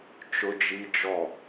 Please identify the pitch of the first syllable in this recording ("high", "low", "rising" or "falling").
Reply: high